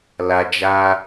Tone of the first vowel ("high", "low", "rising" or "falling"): low